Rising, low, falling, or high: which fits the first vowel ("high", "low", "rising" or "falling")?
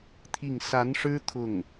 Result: falling